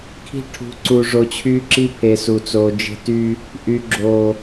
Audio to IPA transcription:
kʰi̤˦ʈʰṳ˨˦ǀu˨ ʐo˨t͡ɕʰyː˦ǁi˦pʰe˨ su˨t͡soː˨d͡ʒe̤˦ ty˦ | ʔy˨ ɡ͡ǁoː˨

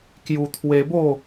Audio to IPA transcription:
kju˧t̪ʰwe˧bo˥˧

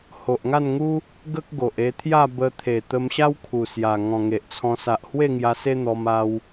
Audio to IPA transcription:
ho˨ʔŋa˥˧nŋu˦ | ɡə˦k̚ɡo˨ʔ e˧t̪ʰja˥˧ bə˧t̪ʰe˨˩ t̪ə˧mɕa˦w kʰu˨˩sja˨˩ ŋɔ̃˨˩ ŋe˨ʔt͡sʰɔ̃˧ sa˨ʔhwe˥˧ŋja˧ se˦n̪ɔ˧ma˧w

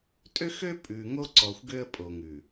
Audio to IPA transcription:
tʼø˦xø˦ pʼʉ˨ ŋo˦ǀɔ˨xʷ ɡø˦ə̯pʼo˨ ŋʉ˨

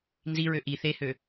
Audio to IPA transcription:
nziɹø ʔi θehø

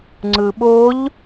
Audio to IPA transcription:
ŋ͡ǀɯɓoʎ

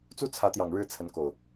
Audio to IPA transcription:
t͡su˦t͡sʰä˨˦t̪jɑ˨˩ŋ ɻɻ̩˦t͡sʰə˨˦nko˨˩ʊ̯

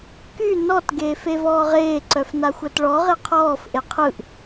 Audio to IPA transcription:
ky nɔt ɡeːfevɔːʁeː ǀœfnaxʷœtɭɔ ʁeqʰɔːf ʔeqʰɯʔ

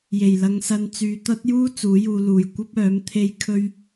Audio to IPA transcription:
je˨˩jlɐ˨˧ŋsɐ˧n t͡syː˨t̪ɐ˥t̚ juː˥ t͡suː˨˥juː˧luː˨j kʷɐ˥p̚œː˨˥m t̪ʰe˥jkʰɵ˥ɥ

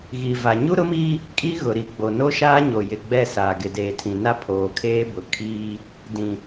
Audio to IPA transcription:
ɣi˨va˨ ɲu˦ɾʊ˦miː˦ | kʼi˦ɣʊ˨ɾi˨ ɡ͡bo˨no˦ʃaː˦ɲo˨ jɪ˨ ɡ͡bɛ˦˨saː˨ ɡɪ˨deː˨tʰĩ˨na˦ pʰoː˨kʰeː˦bʊ˨kʰiː˦ | dĩ˨

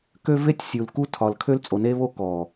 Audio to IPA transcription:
kø˦ve˦tʲsʲu˨l ku˦ tʰɒ˨l kʰø˦lt͡sʼo˨ne˦βo˦ kɔ˨

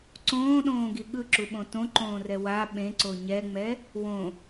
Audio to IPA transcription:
ǀõːɗõːɡi ɠɯǁuɓõ tõǃõːrɛ wa ɓẽǀo ɲɛŋ͡mɛ | wõ

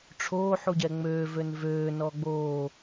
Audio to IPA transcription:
ʈ͡ʂʰoːħuɟɛ ŋ͡møːvøn vøːnɔ ɡ͡boː

